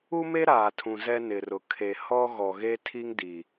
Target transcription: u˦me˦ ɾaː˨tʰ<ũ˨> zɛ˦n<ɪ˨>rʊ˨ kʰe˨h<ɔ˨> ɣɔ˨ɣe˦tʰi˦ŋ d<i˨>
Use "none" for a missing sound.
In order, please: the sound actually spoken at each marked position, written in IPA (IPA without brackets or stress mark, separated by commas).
ũ˨, ɪ˨, ɔ˦, i˨